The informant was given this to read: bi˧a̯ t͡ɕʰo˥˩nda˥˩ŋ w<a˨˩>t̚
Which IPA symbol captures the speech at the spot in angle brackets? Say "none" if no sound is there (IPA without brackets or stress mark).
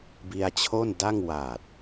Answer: a˨˩